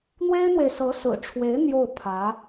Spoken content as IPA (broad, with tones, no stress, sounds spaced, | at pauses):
n̪ w e˥ ɪ̯ n̪ w e˨ ɪ̯ s ɤ˧˥ s ɹ̩˨˩ ʈ͡ʂʰ w e˧˥ ɪ̯ n̪ j o˥˩ ʊ̯ pʰ ä˧˥